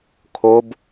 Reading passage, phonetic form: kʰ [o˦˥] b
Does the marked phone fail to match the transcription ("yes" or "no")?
no